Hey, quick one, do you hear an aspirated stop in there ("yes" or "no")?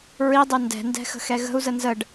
no